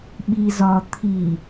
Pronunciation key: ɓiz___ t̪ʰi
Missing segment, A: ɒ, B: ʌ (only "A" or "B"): A